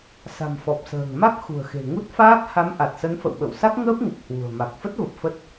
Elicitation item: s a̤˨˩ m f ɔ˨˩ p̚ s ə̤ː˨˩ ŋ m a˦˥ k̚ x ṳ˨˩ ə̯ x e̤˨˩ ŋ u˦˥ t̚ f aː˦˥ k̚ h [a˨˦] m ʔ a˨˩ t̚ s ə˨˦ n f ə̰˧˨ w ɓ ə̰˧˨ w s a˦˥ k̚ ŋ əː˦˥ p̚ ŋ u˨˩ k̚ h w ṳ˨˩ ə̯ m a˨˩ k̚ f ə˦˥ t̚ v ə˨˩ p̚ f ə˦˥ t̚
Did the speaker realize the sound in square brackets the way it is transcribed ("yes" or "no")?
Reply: yes